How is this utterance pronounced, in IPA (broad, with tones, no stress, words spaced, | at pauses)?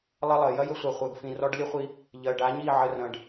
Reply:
lˠɐ˦lˠɜ˨ jɐ˧jə˧sʷa˨χʷɜ˨ɡ fĩ˨rɔ˧ɖlʲə˦χʷi˧ | ʎɜ˨ɖa˨˦ɲi˦˨ ʕə˧rɐ̃˧ɖ